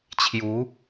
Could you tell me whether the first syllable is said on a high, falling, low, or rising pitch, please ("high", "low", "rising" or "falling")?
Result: rising